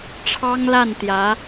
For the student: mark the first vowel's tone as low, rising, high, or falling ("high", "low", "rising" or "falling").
high